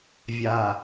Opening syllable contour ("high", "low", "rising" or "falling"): low